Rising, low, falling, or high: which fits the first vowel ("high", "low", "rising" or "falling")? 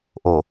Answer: low